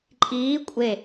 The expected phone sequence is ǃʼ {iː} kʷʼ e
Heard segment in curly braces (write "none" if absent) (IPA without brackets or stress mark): iː